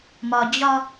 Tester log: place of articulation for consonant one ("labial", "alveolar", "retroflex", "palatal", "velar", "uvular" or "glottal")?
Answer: labial